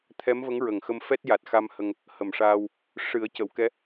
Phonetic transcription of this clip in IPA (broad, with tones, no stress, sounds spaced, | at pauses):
t̪ʰ ɛ˧˥ m v ə˧˥ ŋ ɹ ə˨˩ ŋ x ə˧ m f ɛ˦˥ t̚ j a˨˩ t̚ x a˧ m h ə˧ ŋ | h ə˨˩ m ʂ aː˧ w | ʂ ɨ˨˩˦ ə̯ c ə˨˩˨ w k ɛ˧˥